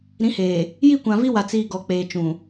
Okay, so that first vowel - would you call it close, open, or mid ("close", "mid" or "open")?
close